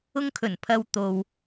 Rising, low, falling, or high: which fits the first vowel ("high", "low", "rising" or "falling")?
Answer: high